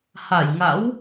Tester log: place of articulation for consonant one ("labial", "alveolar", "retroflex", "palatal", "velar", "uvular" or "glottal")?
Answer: glottal